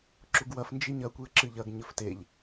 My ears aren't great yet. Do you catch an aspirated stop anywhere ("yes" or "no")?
no